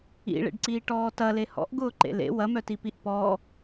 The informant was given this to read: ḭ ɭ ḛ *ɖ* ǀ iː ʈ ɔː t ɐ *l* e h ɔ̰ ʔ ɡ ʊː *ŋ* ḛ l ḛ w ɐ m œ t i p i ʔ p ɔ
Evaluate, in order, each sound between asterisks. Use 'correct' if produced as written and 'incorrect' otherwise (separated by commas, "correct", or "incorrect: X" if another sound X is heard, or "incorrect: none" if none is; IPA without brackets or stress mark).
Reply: correct, correct, incorrect: ǃ